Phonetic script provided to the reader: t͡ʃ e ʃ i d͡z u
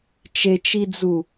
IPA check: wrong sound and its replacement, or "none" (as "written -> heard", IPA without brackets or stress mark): ʃ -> t͡ʃ